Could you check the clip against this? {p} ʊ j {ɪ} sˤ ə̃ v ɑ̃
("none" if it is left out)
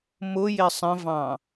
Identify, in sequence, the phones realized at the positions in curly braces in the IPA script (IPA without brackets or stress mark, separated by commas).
m, ɪ